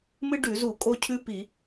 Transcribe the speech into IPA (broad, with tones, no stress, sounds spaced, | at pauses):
m ɨ˦ ɖ ʉ˧˩˧ z u˧˩˧ kʼ o˦ cʰ ʉ˦ p i˧˩˧